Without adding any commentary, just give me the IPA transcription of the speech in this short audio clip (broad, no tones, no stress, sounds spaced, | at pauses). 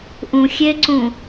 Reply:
ʔ ũ xʲ e ǀ ũ